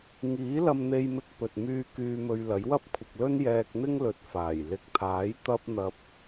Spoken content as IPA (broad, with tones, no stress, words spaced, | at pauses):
ŋiː˨˥lɐ˧mn̪e˧jmɪ˧k̚ pɵ˨t̚ myː˧ kyː˧mɵ˧ɥlɐ˨˥j wɐ˥p̚kʷʰɪ˨k̚lɵ˥n jɛː˧k̚n̪ɪ˥ŋlɵ˨˥t̚ faː˨˩j lɪ˨˥k̚t̪ʰaː˨˥j t̪ɐ˥p̚n̪ɐ˧p̚